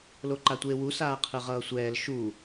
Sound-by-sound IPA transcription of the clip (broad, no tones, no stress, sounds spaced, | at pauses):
l o ǃ a tʷ eː w u s aː qʰ ɯ ʁ ʌː sʷ ɛː l ʃ u